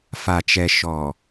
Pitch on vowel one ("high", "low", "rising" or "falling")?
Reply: low